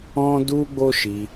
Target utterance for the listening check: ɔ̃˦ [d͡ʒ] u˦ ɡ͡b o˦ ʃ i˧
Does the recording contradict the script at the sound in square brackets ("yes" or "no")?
yes